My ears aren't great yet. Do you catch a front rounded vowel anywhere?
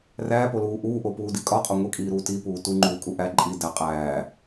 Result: no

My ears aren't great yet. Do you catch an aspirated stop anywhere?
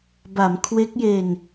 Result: yes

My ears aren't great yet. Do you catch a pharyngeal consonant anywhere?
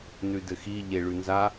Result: no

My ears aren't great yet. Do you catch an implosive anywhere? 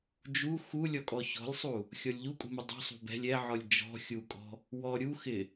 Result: no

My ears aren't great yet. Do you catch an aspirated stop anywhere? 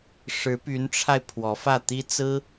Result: yes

